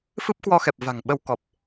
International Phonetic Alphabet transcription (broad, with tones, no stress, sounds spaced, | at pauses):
f ɨ˦˥ p̚ k w ɔ˧ x ɛ˨˩ p̚ v a̤˨˩ ŋ ɓ ə˧ w k ɔ˨˩ p̚